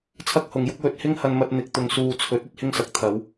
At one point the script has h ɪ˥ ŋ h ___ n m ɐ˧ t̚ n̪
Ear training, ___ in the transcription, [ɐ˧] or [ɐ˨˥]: ɐ˧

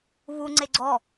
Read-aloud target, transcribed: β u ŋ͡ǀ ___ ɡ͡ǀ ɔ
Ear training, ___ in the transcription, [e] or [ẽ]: e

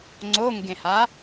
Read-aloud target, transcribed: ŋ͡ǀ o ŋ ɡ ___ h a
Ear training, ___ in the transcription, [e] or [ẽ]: ẽ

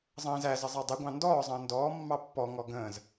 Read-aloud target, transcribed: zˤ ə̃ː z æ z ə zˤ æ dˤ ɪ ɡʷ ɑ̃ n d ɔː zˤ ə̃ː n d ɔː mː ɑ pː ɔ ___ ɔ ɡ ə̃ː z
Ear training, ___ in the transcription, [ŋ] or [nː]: ŋ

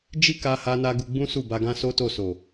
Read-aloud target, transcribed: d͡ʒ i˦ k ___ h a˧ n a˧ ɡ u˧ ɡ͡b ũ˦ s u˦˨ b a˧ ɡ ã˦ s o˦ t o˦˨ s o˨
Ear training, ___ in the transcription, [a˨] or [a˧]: a˧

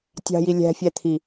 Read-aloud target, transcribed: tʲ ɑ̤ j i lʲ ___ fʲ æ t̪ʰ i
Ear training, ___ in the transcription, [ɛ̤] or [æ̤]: æ̤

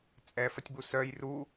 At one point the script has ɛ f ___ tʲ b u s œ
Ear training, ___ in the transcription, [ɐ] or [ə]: ɐ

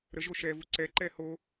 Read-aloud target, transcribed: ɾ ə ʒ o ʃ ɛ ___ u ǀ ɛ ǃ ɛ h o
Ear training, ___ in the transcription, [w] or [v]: v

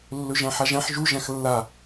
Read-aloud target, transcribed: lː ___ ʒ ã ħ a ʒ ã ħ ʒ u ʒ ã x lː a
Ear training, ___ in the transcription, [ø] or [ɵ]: ɵ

